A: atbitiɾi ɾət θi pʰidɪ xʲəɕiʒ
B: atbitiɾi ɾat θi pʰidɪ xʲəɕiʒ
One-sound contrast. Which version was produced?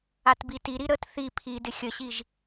A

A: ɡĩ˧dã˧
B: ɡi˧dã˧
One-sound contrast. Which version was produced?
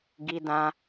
B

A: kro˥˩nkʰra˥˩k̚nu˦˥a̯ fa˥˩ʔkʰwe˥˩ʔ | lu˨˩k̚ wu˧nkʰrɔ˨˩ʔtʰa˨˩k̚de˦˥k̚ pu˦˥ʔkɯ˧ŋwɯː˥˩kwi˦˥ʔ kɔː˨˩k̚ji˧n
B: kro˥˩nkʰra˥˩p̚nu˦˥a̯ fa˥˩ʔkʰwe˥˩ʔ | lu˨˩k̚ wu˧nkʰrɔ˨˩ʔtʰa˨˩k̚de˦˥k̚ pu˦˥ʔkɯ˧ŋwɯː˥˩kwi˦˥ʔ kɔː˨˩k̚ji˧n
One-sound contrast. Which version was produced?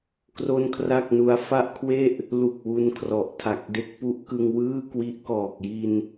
A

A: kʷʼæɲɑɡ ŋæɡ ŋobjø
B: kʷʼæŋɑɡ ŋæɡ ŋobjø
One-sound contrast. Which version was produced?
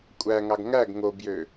B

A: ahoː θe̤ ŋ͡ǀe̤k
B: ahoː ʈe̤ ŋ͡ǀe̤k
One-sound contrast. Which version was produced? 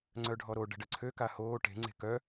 B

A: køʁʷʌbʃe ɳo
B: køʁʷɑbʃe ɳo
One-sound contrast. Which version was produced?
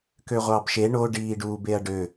B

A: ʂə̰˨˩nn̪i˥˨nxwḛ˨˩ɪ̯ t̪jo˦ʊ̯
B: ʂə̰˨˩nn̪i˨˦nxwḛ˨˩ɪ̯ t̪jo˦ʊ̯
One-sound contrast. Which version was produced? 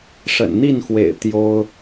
A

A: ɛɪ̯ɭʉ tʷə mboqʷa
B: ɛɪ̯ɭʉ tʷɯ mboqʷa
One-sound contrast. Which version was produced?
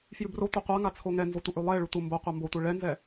A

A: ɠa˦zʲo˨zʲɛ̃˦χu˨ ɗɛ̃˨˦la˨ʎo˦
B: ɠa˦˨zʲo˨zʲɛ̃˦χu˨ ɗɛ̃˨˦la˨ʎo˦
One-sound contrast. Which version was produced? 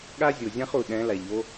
A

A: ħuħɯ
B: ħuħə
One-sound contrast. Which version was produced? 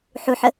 B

